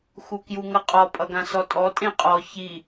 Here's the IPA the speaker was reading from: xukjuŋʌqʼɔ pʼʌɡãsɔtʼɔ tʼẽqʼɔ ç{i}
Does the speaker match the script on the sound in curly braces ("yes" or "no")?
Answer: yes